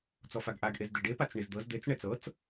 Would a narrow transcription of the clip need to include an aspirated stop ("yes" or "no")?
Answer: no